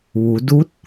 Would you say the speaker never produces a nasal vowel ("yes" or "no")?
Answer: yes